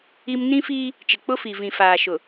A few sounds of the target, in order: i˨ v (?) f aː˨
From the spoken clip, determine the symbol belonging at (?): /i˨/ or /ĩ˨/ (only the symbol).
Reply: ĩ˨